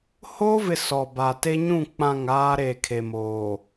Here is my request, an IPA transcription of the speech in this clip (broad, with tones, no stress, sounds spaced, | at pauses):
h o˦ v ɪ˦ s ɔ˨ b a˨ t e˦ ɲ ũ˦˨ k͡p ã˦˨ ŋ aː˦ ɾ e˨ kʰ e˨ m oː˨